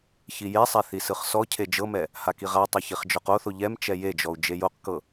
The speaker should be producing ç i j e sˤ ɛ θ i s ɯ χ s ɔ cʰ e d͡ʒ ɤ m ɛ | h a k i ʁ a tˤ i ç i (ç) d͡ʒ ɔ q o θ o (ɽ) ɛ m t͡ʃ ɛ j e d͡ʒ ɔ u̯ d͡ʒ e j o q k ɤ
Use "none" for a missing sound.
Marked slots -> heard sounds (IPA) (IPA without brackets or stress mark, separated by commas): χ, ʎ